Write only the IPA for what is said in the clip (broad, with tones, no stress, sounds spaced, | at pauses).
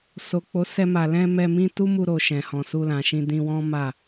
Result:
s o˨ k͡p o˨˦ s ɛ˧ m a˨ l ɛ̃˧ m ɛ˧ m ĩ˦ t u˦ m u˧ ɾ o˨ ʃ ɛ̃˨ h ɔ̃˨ s u˧ l ã˨ ʃ ĩ˧ d ĩ˧ w ɔ̃˦ m a˦˨